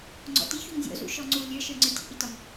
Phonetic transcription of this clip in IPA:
ŋ͡ǀ ɔ̰ t i ç u ŋ zʲ ɔ̰ z ṵ ʃ ɔ ŋ͡ǀ u lʲ ə˞ ʃ ə˞ ŋ͡ǀ ə˞ tʲ ṵ ʔ i t ɒ ŋ

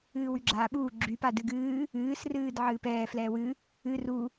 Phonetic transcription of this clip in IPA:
ɨː w y ɡ͡ǁ aː ɓ uː ɡ͡ǁ y p a d ɨ ɡ ɨː | ɨː s r ɨː d ʕ ɨː p ɛː f l ɛː w ɨ | ɨ r u

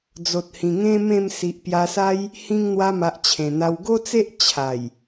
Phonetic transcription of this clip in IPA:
d͡z o˨ t̚ h ĩ˨˩ ŋ ẽ˦ m ẽ˥˧ m s i˨ ʔ p j a˧ s a˦ j | h ĩ˧ ŋ n̪ w a˧ m a˨ ʔ t͡ɕʰ ẽ˨˩ n̪ a˧ w ɡ o˦ t͡s e˦ ʔ t͡ɕʰ a˨˩ j

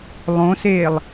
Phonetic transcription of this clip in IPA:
lˠ õ s eː lˠ

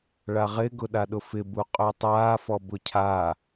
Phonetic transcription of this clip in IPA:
ɭ a ʁ ɪ ɡ ʊ ɗ a ɗ ʊ f ɪ b u qʼ ø tˤ aː f ɔ b ʊ cʰ a

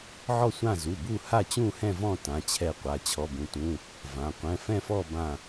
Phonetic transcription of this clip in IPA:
ʕ ɔ˦˨ sʷ ã˦˨ z u˩˧˩ b u˦˨ h a˦˨ t͡ɕ ũ˦˨ h ɛ̃˦˨ v ɔ̃˦˨ t ã˩˧˩ t͡ɕʰ ɛ˦˨ qʷ a˩˧˩ t͡ɕʰ ɔ˩˧˩ b ũ˩˧˩ t ũ˩˧˩ | v ã˩˧˩ qʷ ɛ̃˩˧˩ f ɛ̃˦˨ f ɔ˦˨ b ã˦˨

